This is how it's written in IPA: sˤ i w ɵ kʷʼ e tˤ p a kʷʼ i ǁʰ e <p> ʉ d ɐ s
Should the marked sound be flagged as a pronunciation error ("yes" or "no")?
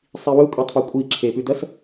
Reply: no